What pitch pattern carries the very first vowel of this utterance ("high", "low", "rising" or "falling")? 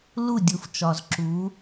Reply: falling